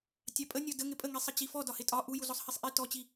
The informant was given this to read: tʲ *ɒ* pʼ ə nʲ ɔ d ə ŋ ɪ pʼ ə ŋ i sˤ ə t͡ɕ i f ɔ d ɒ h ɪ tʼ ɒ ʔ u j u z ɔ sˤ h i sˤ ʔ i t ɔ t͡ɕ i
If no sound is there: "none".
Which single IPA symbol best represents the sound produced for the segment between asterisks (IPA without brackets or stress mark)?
ɑ